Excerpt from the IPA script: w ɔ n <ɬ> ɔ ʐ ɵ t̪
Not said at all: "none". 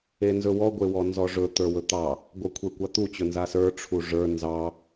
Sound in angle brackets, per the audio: z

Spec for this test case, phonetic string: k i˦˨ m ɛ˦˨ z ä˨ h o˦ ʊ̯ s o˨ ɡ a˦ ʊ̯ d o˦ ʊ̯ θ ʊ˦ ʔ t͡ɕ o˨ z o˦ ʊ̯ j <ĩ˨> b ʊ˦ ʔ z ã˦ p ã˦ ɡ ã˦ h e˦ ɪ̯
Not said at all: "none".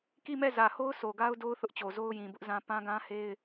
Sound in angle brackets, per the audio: ĩ˨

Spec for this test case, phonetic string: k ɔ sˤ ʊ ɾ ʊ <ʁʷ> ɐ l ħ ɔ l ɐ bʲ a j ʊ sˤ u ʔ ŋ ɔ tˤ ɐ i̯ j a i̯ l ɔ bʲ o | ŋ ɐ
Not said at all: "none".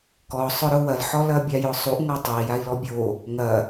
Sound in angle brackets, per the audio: w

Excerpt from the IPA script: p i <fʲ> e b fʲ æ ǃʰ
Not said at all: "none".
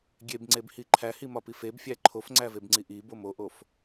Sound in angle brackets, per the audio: f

